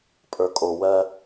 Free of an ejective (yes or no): no